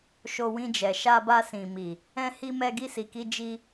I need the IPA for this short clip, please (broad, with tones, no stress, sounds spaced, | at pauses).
ʃ o˧ w ĩ˧ d͡ʒ ɛ˨ ʃ a˧ b a˧ s ĩ˨ m i˨ | ɛ̃˧ h i˧ m ɛ˧ ɡ i˧ s i˨ k i˧ d͡ʒ i˧